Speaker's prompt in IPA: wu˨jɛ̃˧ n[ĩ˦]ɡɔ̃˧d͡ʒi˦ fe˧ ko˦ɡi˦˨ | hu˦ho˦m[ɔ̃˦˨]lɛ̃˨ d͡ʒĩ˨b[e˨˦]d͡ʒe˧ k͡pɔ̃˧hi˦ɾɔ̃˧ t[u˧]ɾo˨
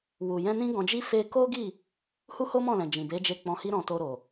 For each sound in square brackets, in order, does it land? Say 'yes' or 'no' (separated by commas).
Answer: yes, yes, yes, no